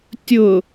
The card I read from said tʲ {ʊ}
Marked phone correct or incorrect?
correct